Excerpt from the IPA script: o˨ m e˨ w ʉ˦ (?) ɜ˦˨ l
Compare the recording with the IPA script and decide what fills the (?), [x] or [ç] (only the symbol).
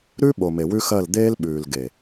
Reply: x